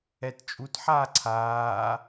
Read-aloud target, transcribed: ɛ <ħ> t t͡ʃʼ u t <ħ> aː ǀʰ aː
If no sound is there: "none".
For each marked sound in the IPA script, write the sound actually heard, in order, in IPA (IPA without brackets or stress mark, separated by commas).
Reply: none, ħ